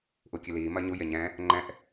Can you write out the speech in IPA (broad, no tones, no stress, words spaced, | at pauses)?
ʔukʲɨliː mɐɲu jeɲɛ̃ | ŋ͡ǃɛ̃ʔ